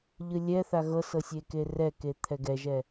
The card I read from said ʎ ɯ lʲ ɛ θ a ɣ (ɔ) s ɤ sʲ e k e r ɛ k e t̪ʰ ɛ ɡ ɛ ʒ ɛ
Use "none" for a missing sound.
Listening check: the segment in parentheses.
ɤ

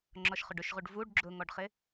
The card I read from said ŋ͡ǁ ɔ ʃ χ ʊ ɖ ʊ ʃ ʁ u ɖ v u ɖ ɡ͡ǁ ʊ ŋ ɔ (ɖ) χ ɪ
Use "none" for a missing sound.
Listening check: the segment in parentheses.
ɖ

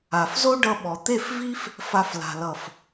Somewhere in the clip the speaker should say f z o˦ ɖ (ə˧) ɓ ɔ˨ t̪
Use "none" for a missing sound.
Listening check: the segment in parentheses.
ʌ˧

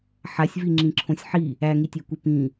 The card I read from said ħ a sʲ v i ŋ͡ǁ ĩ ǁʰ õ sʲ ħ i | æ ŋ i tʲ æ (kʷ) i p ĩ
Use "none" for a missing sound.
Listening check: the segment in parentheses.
kʷ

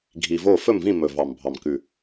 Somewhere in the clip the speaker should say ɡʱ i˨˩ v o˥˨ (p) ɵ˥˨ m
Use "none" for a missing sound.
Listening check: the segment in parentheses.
f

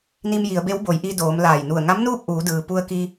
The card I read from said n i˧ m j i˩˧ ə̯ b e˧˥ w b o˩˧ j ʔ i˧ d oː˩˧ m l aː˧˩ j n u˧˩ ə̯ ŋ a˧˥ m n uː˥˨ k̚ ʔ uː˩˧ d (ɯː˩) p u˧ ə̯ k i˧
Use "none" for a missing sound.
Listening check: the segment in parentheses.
ɯː˩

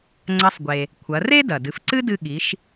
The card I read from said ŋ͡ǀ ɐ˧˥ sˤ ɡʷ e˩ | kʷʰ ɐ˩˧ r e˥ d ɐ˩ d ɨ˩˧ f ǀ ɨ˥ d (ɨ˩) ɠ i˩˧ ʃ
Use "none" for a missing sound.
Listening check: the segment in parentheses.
ɨ˧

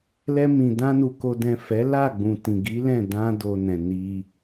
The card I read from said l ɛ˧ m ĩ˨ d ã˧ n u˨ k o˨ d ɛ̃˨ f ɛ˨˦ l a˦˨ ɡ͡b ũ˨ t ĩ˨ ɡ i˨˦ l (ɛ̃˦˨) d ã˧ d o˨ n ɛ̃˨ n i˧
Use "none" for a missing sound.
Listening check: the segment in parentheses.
ɛ̃˦˨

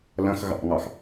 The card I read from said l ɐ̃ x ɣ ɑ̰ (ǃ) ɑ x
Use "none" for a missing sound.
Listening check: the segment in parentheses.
ŋ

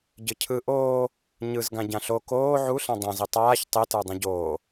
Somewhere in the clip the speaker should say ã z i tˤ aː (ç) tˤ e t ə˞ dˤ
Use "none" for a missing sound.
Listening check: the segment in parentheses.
ç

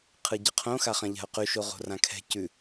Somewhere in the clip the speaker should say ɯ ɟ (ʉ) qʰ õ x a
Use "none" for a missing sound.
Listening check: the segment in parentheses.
ə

